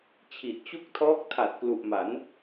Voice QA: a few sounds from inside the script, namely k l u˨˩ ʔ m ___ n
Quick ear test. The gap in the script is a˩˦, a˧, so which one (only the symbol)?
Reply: a˩˦